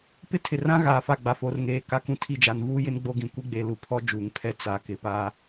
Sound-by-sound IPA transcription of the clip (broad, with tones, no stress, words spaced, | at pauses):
pɪ˦tʰɪ˨rã˦ ɣaː˨fa˦˨ɡ͡ba˨ fo˨rŋeː˨ ka˦kũ˦tʰi˦˨ d͡ʒa˨nvuː˦jɪ˦n ɡ͡bo˦ɡĩ˨ kʷi˦ɡ͡be˨lu˨pʰɔ˦ d͡ʒuː˨ŋpʰɛ˦ t͡sa˨ kɪ˨pa˦